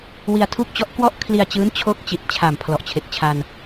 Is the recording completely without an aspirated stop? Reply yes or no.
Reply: no